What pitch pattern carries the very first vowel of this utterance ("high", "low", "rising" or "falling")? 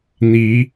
rising